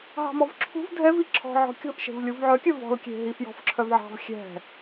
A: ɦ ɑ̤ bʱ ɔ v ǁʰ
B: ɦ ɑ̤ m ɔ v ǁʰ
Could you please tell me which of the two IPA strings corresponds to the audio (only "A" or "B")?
B